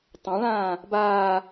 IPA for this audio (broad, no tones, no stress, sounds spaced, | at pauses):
tˤ ã ɭ ãː | b aː